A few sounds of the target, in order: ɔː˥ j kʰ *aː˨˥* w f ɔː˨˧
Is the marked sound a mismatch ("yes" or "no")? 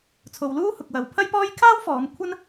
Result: yes